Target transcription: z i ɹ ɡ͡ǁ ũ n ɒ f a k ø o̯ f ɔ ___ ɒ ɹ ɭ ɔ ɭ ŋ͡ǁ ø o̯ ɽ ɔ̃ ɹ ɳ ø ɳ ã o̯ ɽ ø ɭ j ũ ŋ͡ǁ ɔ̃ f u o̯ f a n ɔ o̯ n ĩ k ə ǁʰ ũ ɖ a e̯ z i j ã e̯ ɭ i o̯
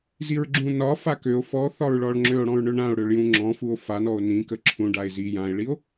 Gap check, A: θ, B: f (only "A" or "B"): A